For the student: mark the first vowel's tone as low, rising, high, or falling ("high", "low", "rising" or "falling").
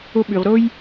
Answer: high